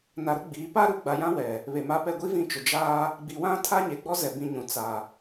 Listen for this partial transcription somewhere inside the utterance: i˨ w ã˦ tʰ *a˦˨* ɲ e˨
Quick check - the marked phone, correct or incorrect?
incorrect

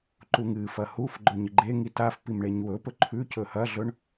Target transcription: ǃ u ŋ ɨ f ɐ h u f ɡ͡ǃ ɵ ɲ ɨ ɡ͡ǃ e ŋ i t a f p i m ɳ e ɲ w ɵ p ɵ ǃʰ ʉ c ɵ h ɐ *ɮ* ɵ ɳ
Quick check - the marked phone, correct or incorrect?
correct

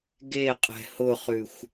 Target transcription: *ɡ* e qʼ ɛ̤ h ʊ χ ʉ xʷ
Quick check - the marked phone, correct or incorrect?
correct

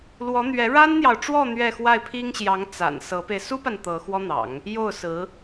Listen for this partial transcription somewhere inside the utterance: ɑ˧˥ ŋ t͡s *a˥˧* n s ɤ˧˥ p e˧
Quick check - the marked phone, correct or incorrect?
incorrect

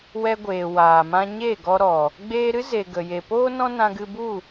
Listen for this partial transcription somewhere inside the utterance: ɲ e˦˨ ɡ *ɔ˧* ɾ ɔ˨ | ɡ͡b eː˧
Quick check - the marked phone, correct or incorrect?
correct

